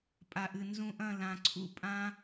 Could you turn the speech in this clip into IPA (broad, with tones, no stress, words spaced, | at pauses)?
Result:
pʼa˨ʔɨ˨ nzũ˧ʔɐ̃˦˨ lã˨ǀʰṵ˦pʼã˦